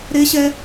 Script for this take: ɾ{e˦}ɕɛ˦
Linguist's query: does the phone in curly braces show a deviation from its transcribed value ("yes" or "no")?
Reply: no